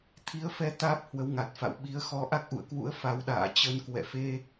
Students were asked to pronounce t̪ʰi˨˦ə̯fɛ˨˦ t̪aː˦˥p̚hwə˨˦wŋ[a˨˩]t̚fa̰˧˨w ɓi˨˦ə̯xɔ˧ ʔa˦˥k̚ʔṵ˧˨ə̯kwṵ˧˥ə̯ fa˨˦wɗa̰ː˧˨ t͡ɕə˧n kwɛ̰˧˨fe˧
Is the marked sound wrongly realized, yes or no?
no